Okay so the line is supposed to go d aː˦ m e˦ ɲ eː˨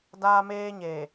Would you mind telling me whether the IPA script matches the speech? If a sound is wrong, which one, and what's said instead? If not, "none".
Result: e˦ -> eː˦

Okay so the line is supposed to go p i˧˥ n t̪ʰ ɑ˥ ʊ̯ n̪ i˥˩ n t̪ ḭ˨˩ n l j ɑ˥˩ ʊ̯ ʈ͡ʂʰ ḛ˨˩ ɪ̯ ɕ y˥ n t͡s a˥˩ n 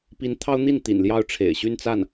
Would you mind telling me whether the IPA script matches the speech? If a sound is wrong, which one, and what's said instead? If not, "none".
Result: none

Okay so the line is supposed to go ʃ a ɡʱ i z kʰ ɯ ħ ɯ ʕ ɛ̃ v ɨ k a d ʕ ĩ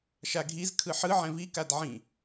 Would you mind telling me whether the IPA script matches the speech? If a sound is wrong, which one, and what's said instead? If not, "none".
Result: ɨ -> i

